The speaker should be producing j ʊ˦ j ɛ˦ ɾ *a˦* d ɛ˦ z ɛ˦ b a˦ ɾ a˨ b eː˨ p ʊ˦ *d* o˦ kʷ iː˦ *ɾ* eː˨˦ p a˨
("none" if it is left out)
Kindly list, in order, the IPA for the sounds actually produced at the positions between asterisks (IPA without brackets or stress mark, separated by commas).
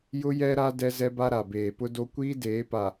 a˦, d, d